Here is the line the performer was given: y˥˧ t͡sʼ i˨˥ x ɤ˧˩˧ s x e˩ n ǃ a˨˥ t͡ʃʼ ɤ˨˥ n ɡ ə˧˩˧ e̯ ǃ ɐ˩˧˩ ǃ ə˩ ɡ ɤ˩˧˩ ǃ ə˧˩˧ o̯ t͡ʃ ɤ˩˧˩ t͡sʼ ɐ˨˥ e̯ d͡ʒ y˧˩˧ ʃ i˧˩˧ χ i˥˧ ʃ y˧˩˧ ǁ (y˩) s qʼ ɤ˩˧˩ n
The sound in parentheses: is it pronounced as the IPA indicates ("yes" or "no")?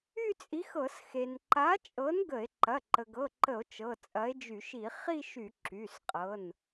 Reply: no